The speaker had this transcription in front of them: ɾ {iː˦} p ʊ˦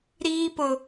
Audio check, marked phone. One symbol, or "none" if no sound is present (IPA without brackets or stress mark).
iː˦